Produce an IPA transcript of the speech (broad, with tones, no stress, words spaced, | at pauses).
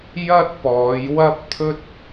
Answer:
jɐ˥t̚pɔː˨˧jwɐ˥p̚ t̪ʰɵ˥t̚